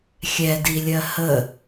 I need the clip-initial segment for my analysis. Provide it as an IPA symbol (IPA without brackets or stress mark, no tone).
xʲ